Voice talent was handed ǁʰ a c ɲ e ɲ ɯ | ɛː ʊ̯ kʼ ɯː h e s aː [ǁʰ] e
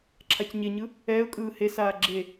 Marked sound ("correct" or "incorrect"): incorrect